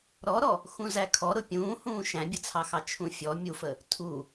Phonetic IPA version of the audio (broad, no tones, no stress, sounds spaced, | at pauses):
ɾ ɔ ɾ ɔ | x ũ z æ kʰ ɔ ɾ ʊ pʲ ũː h ũː ʃ æ̃ bʲ ə t͡sʰ ɑ x ɑ t͡ʃʰ ũ fʲ ɔ mʲ u f ə | tʰ u